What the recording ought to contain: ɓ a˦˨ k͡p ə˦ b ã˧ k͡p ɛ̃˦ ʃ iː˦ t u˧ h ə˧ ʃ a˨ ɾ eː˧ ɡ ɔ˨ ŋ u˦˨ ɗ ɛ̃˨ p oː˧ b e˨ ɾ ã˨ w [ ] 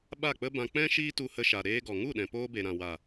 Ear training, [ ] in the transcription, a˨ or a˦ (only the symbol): a˨